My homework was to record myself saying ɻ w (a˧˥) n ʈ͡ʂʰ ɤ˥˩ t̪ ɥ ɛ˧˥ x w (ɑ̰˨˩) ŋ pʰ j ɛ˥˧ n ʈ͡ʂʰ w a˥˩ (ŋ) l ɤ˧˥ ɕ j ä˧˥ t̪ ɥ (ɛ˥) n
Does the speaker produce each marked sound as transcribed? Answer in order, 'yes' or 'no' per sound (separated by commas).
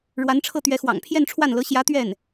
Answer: yes, yes, no, no